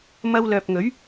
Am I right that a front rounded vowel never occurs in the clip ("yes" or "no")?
no